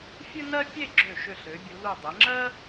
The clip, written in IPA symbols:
fʲ ɨ˥ n ɜ˥ pʲ e˥˧ ɡ͡ǁ ø˧˩ ʃ ø˧˩ ɬ ø˩˧ bʲ u˩˧ l u˧˩ dˤ e˩˧ ŋ͡ǁ ɜ˥

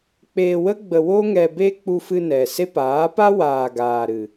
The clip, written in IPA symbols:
k͡p eː˧ w ə˦ ɡ͡b ə˧ w o˦ ŋ ɛ˧ b e˦ k͡p u˧ f ɨ˧ n ɛ˨ s e˦ p aː˨˦ p a˦ w aː˨ ɡ aː˨ ɾ ɨ˨

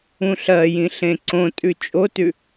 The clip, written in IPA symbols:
ũ ɬ ɜ j ĩ ɬ ẽ ǀ õ tʼ ʉ t͡ʃʼ o t ʉ

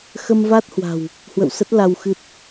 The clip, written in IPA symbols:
x ə˧ m v a˦˥ t̚ h w a̤˨˩ w | h w ə̰˧˨ w s ə˦˥ t̚ l a˧ w x ɨ˦˥ t̚

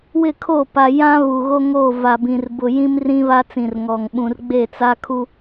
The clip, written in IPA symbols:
w ɪ˦˨ kʰ o˦˨ p a˨ j ã˦ β u˨ ɣ o˦ ŋ o˦˨ v a˨ b ĩ˨ r b ʊ˨ j ĩ˦ m r ĩ˦ β a˦ t͡s ĩ˨ r ŋ ɔ˨ ŋ ɓ ũ˨ r ɡ͡b e˦˨ t͡s a˦ kʰ u˦

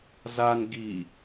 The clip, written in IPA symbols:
z a n ɡ i

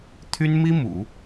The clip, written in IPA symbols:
t̪ʰ y˥ n m i˥ m ṵ˨˩˦

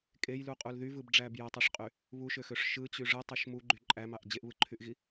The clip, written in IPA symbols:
kʼ e j l u qʼ u l ð y v ɯ b ɖ͡ʐ æ b j æ tˤ ø ʂ qʼ y | β u ʃ ø x ø ʂ ʃ ɯ t͡ɕ y ʐ ɯ tˤ ø ʃ m u ɡ͡ǃ y ǃʼ æ m ɑ ʔ d͡ʑ e ʔ β ɯ ǃʰ y ʔ ɣ i

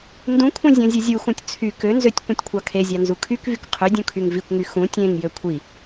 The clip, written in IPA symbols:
n d ũ kʷʰ ẽ zʲ õ zʲ ɯ zʲ u x ũ tʲ t͡sʰ y k ø n z ø tʲ kʷ ẽ tʲ kʷʰ ɑ kʰ e zʲ ɑ n z u kʰ y k v y k qʰ ø dʲ ũ kʰ y ŋ v i kʷ ŋ y x ũ tʲ ẽ ŋ j ø kʷʰ i

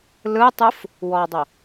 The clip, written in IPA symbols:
l ɯ tˤ ɯ f | w ɔ dˤ o

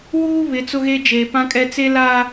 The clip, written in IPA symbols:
w uː˦ β ɪ˨˦ t͡s ʊ˦ ɣ e˦ d͡ʒ eː˨ p ã˦ kʼ ɛ˦ t͡s e˦ l a˦

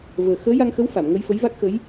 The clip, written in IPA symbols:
v əː˨˩ x əː˧˥ j a˧ ŋ x ə˧˥ w f a˨˩˨ m ŋ ə˧ j f ə˧˥ j v a˦˥ k̚ x ə˧˥ j

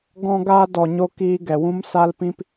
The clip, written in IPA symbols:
ɡ ɔ̃˧ ɡ aː˧ d ɔ˨ ɲ o˧ k iː˧ ɡ ɛ˨ w ũ˦ m s a˧ l p ĩ˧ p

